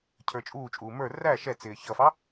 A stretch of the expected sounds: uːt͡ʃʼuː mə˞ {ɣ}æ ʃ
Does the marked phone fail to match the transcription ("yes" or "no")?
yes